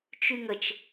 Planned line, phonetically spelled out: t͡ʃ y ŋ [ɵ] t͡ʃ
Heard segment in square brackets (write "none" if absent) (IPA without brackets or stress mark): ə